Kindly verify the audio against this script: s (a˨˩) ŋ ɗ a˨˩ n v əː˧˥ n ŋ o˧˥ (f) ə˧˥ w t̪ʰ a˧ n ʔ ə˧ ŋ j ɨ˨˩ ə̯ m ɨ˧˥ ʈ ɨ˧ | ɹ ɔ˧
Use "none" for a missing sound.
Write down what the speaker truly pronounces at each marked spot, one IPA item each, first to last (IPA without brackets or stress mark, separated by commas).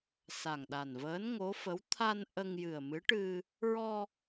a˨˩, f